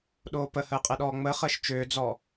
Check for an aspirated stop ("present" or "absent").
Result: absent